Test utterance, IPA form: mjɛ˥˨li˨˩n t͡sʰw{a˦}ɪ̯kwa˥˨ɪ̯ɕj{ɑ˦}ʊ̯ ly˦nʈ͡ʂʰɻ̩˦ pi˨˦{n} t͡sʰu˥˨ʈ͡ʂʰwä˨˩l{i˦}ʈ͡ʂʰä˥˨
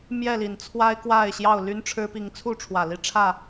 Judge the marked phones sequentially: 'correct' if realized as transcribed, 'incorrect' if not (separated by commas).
correct, incorrect, incorrect, incorrect